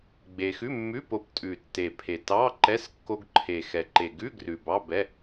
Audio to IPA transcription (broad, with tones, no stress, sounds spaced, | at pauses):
ɡ͡b e˧ x ʉ˧˥˧ mː ʉ˧˥˧ p o˧ p tʼ ʉ˨˩ tː e˨˩ pʰ e˨˩ t ɑ˧˥˧ ǃ ɛ˧˥˧ s kː o˧ ɡ ǃʰ e˨˩ x ɛ˨˩ ǃ e˨˩ ɡ ʉ˧˥˧ ɡ r ʉ˨˩ b ɑ˧˥˧ b ɛ˧˥˧